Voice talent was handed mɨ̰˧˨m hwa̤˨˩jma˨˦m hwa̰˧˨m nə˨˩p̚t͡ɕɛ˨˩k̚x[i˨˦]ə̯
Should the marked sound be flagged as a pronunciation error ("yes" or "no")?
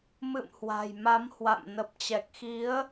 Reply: no